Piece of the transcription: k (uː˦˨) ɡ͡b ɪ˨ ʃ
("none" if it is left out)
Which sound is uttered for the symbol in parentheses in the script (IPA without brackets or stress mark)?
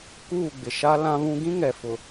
uː˦˨